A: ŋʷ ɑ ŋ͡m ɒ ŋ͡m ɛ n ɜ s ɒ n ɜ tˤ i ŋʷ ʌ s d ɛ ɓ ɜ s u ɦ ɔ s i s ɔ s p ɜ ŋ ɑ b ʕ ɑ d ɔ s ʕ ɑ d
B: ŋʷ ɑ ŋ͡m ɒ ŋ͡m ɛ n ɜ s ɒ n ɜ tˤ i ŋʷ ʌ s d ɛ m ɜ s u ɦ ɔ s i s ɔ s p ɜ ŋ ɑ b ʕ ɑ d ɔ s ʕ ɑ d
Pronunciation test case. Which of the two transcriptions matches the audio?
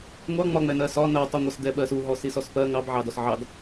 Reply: A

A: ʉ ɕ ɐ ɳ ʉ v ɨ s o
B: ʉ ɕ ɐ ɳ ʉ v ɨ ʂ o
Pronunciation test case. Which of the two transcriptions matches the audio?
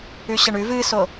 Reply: A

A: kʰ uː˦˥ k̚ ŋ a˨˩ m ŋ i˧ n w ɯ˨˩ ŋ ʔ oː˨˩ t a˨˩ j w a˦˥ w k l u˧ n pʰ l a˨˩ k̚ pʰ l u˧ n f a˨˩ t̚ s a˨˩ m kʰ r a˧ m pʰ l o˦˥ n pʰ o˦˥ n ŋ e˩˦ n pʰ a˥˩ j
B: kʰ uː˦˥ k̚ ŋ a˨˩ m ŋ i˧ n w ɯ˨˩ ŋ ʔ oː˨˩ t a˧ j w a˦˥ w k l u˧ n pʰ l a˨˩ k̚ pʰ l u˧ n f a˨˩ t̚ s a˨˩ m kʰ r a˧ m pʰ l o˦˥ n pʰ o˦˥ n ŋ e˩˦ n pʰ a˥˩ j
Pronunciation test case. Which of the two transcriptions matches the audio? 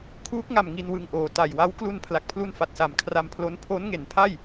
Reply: A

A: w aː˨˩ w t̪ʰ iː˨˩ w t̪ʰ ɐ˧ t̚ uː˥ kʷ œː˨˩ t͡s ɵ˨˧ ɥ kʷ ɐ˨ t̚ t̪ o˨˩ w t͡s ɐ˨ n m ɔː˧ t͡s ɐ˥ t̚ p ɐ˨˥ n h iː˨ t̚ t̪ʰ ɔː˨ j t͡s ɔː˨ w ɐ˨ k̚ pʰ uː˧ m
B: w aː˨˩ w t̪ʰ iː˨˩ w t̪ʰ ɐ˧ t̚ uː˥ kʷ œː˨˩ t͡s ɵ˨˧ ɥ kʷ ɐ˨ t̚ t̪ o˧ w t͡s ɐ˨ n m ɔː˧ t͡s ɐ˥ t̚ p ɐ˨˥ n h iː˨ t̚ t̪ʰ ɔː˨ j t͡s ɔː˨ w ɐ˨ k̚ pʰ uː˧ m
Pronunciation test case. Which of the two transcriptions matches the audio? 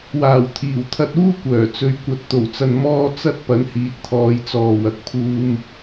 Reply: A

